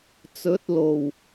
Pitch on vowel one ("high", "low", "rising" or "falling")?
rising